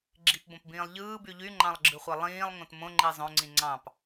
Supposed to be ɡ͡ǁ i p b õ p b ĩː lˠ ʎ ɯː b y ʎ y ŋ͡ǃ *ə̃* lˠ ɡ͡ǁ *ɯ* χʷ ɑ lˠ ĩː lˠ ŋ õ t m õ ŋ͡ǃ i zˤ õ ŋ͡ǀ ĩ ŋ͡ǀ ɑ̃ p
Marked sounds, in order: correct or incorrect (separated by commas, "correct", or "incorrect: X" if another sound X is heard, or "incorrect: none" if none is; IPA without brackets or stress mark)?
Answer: incorrect: ɑ̃, correct